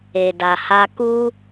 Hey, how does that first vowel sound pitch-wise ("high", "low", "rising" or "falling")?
low